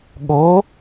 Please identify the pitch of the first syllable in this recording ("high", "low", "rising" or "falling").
rising